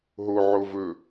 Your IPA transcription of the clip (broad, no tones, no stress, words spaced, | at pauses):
ɦoʕovɵ